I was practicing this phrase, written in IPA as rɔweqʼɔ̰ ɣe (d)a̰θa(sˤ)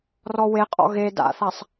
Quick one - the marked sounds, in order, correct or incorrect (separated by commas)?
correct, correct